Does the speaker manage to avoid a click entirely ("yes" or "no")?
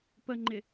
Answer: no